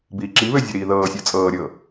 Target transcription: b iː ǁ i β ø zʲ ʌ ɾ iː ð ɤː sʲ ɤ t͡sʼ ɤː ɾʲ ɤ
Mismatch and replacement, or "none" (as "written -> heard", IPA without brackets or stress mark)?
none